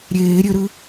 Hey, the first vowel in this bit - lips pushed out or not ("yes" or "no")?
no